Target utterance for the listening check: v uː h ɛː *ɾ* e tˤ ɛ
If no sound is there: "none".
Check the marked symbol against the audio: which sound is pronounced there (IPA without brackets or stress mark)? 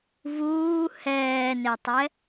n